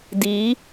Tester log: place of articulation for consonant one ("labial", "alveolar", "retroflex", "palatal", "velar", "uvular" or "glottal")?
alveolar